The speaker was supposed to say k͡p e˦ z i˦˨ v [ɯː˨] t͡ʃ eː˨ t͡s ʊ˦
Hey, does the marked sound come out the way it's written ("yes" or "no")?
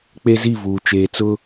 no